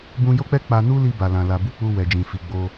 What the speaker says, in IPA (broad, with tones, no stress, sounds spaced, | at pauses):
b ũ˧ j o˦ k͡p ɛ˦ k͡p a˧ n u˦ l i˧ b a˨ l ã˨ l a˨ b u˧ k͡p u˧ w ɛ˨ d͡ʒ ĩ˨ f i˨ ɡ͡b o˧